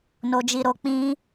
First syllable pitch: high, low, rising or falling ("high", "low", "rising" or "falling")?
low